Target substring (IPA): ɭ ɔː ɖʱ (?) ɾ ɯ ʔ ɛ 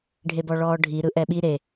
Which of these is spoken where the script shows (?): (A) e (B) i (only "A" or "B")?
B